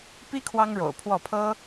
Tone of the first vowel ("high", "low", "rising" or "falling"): high